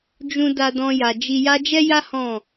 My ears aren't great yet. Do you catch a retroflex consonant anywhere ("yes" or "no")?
no